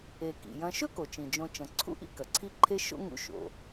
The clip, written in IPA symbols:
e˩ k ḭ˩ j ɐ̃˨ ʃ ɵ˥ k o˩ t͡ʃ ĩ˩ d͡ʒ õ˨ t͡ʃ ɐ̃˩ ǀʰ ṵ˥ ʔ ḭ˦ k ɐ˩ ǀʰ i˦ ǃʰ e˦ ʃ o̰˥ ŋ ṵ˦ ʃ o̰˩

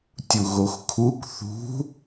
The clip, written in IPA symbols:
tʲ u ɣ o x kʰ u k θ ṳ

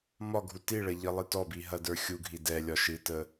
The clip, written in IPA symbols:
m ɒ ɡʱ u t i ɭ ɐ ʎ ə lˠ ɨ t ɔ b i ɦ ɐ d ə˞ xʲ u ɡʱ i d ɛ lʲ ɒ ʃ ɨ t ə

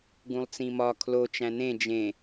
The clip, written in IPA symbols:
ɡ ũ lˠ t͡s ĩ m ɒ kʰ l o t͡ʃ æ̃ n ẽ d͡ʒ ẽ

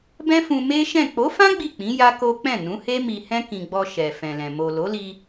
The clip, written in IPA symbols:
b ɛ̃˦ f ũ˧ m e˦ ʃ ɛ̃˦˨ k͡p o˨˦ f ã˦ ɡ͡b i˦˨ k͡p ĩ˨˦ j a˦ k o˦ k͡p ɛ̃˦˨ n ũ˨˦ h e˦ m i˧ h ɛ̃˦ k ĩ˧ ɡ͡b ɔ˧ ʃ ɛ˨ f ɛ̃˨ l ɛ̃˨ m o˨ l o˨˦ l i˧

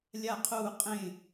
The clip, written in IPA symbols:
lʲ a˦˨ qʰ uː˦˨ qʼ ẽ˦˨

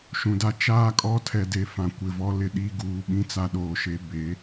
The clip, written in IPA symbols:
ʃ ũ˨ d a˦ t͡ʃ aː˦ kʼ ɔ˦ tʰ ɛ˨ d e˨ f ã˨ kʷ ɪ˨ v ɔ˦ l ɪ˦ ɗ i˦ ɡ uː˨ ɓ ĩ˦ t͡s a˦ ɗ oː˨ ʃ e˨˦ b e˨˦

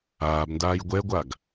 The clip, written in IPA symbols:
aː b n d aː j ɡʷ ɛ ɡʷ a ɡ

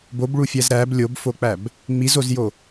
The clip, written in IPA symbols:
b o b ɭ u fʲ æ z ɾ æ b lʲ o b f o k͡p æ b | ŋ͡m i z o z j o

